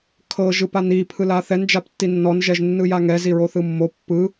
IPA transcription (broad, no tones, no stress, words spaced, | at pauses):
kʰɤ ʒɯpani pʰɯlaθɛn d͡ʒaptːinːɔn ʒɛʒnːɯjaŋɛ ziɹoθɯmːo pːɯ